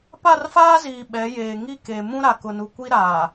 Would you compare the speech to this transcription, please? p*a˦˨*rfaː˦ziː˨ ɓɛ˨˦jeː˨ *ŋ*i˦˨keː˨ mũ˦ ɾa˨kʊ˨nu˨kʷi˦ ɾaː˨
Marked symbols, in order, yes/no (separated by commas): yes, yes